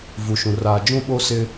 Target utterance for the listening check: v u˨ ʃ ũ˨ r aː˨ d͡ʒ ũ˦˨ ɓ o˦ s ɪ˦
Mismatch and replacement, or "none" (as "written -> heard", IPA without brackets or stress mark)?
none